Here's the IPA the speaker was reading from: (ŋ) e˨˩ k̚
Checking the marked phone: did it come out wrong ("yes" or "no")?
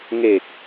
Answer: no